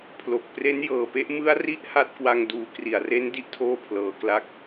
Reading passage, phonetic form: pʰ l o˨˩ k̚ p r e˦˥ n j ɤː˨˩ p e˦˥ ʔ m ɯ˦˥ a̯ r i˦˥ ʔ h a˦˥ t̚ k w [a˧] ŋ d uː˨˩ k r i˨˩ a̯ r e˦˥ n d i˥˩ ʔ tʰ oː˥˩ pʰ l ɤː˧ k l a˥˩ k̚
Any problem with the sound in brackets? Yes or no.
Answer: no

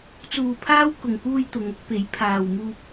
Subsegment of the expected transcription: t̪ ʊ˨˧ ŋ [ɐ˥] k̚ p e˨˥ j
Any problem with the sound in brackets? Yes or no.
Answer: yes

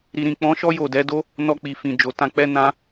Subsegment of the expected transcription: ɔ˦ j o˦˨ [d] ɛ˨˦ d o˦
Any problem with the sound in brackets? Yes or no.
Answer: no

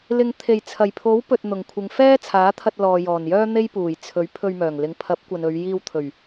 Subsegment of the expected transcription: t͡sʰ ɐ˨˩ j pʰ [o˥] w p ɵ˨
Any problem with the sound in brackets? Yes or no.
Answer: yes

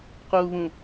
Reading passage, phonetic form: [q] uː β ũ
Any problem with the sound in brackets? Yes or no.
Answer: no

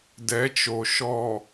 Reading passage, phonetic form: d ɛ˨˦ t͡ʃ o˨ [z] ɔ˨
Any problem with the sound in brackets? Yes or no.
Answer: yes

